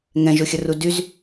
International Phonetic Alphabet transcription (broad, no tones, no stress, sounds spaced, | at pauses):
ŋ ɛ̃ ʒ o xʲ ə r u d y z